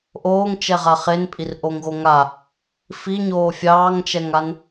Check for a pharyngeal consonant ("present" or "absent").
absent